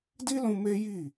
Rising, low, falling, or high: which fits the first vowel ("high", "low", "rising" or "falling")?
high